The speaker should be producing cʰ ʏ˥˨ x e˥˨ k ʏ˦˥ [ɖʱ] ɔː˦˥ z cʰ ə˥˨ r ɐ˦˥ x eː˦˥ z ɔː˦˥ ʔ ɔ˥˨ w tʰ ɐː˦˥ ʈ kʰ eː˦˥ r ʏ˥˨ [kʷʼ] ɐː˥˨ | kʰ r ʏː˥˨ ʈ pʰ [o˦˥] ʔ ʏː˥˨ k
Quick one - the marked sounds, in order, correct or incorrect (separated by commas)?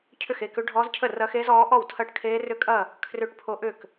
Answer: correct, incorrect, correct